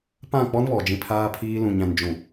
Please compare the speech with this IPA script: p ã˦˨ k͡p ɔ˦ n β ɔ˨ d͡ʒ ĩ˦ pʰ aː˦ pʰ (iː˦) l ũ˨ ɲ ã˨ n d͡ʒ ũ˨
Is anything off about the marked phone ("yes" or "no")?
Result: no